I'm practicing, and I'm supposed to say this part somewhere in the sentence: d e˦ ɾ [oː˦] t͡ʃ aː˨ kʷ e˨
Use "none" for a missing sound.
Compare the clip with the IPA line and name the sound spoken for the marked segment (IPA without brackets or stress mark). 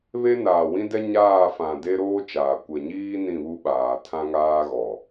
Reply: oː˦